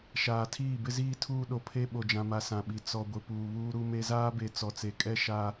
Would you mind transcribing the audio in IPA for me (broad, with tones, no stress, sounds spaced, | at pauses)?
ʃ aː˨ tʰ iː˦˨ b ɪ˦ z iː˦ tʰ uː˦ ɗ o˨ pʰ e˦ ɓ o˨ d͡ʒ ã˨ m a˨ s ã˨ ɓ i˨ t͡s ɔ˨ ɡʷ ɪ˨ p uː˨ β uː˦ ɾ u˦ m e˦ z aː˦ b e˨ t͡s ɔ˨ t͡s e˨ kʼ ɛ˦ ʃ a˦